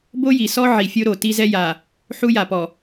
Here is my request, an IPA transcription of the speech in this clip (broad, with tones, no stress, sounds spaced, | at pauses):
b o˦ j i˨ s ɔ˦ ʕ i˨ fʲ o˦ ɾ o˨ t i˦ z ɛ˦ j a˨ | ħ u˦ j a˨ p ɔ˨